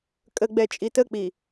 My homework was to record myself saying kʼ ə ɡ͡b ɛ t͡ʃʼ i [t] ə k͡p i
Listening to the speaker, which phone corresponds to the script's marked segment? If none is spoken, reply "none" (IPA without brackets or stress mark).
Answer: t